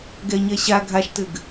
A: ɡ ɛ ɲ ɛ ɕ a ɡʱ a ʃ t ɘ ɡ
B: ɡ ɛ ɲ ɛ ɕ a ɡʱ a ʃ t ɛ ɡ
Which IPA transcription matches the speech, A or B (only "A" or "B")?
A